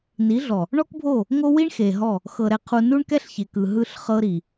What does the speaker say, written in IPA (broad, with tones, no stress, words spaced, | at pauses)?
ni˨˦ɮɔ˨ | ɳɔ˦kbʱo˦˨ | ŋo˦wi˦ɳ xe˨ɦɔ˦˨ | xɤ˨ɾɛ˨qʰu˨ nu˦ɳ kɛ˦ɬçe˨kɯ˨ɦɯ˦˨ɬ χɤ˦ɾi˨